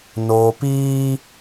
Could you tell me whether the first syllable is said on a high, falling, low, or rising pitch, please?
low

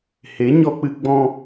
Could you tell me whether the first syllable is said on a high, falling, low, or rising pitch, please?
rising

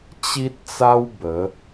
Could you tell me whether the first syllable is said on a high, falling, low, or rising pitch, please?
high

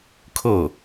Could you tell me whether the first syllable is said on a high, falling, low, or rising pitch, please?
falling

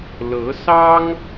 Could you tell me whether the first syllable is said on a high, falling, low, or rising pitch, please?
rising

